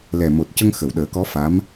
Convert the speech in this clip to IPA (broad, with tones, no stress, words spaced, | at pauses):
lɛ˨˩mo˨˩t̚cə˧ŋ xə˨˩˨wɗəː˨˩˦kɔ˧˥fa˧˥m